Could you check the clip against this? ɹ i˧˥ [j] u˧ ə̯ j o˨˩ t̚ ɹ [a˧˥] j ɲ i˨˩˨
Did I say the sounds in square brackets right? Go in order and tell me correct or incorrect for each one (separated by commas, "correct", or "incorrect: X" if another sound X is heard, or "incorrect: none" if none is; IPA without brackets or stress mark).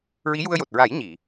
correct, incorrect: a˨˩˦